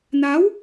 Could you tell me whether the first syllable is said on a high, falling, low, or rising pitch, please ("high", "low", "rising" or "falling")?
rising